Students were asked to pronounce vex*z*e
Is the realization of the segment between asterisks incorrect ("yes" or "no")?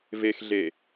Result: yes